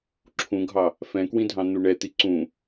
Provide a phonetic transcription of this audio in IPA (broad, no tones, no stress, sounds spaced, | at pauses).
ǁʰ ũ ɡʱ ɑ | f ɛ̃ k w ĩ dʱ ɑ̃ n̪ u ɳ ɛ t̪ i ǀ ũ